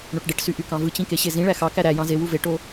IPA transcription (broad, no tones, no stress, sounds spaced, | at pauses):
ɳ o ʈ ɖ e ʈ s y ʔ y k ɑ̃ v ɯ t͡ɕ ĩ k e ɕ e z ĩ ɭ æ x ɑ k æ ɾ æ j ɑ̃ z e w u v e ʈ o